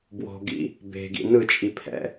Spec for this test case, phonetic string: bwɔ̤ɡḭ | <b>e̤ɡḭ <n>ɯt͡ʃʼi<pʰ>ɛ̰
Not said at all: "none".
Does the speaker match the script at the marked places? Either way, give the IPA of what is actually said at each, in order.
b, n, pʰ

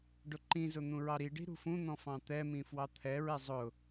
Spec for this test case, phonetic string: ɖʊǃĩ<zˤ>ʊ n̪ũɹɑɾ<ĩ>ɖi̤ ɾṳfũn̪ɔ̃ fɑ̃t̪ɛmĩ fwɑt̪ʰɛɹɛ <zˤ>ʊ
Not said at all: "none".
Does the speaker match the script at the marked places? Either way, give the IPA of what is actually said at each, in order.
z, i, zˤ

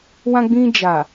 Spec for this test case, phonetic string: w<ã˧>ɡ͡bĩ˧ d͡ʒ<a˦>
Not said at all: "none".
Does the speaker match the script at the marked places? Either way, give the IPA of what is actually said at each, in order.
ã˧, a˨

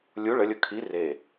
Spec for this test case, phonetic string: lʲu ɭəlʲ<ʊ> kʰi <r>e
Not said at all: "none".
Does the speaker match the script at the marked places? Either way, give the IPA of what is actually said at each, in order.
ʊ, r

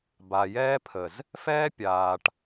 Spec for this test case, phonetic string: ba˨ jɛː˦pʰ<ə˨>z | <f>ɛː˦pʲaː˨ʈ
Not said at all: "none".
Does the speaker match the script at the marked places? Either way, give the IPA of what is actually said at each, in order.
ə˨, f

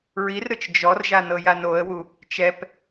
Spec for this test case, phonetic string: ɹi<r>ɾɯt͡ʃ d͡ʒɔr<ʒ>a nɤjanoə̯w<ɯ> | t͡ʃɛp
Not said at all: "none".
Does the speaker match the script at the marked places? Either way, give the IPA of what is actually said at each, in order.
r, ʒ, u

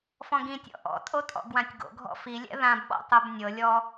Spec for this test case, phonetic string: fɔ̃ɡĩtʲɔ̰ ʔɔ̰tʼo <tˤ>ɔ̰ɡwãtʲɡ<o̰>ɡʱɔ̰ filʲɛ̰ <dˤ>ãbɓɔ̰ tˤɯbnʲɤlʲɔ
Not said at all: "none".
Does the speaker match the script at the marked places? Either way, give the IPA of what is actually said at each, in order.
tʼ, o̰, ð

